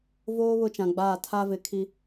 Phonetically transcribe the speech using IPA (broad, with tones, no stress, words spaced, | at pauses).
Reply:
voː˦ βʊ˦t͡ʃã˨ɡ͡baː˦˨ tʰa˦vɪ˨˦ kʰi˦